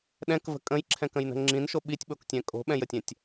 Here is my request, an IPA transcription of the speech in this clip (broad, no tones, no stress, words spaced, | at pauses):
ɗɛ̃kvə̤ kʼə̃jǁʰɛ̃kə̃jnə̤ ŋ͡ǁĩnʃo ɓitʲɓoktʲɛ̃ kʼo̤ɓɛ̃jətʲɛ̃tʲ